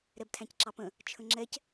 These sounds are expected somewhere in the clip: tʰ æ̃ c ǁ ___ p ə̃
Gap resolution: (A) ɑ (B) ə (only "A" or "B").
A